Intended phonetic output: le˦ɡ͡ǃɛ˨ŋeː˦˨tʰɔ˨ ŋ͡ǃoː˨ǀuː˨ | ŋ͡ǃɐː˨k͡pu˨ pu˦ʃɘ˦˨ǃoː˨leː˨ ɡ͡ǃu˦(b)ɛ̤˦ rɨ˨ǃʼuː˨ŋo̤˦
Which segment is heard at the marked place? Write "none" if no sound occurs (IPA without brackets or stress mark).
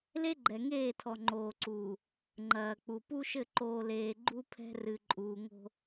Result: pʰ